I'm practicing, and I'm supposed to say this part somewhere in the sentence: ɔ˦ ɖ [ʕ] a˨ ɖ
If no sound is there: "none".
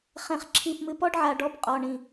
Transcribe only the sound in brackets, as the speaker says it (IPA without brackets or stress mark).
ʕ